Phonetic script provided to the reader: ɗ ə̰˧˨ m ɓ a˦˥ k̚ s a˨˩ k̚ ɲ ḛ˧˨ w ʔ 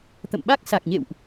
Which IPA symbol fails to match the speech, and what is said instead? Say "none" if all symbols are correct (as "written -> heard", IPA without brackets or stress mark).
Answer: ɗ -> t̪